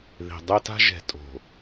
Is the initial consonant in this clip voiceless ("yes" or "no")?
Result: no